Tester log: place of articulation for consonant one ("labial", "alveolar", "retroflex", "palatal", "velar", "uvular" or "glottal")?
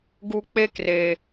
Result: velar